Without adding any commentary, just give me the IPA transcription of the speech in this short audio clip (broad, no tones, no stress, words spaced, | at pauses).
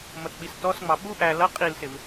mʌtɓistɔsŋ͡mɑ ɓu ʔæ lʌ qʼilsɪv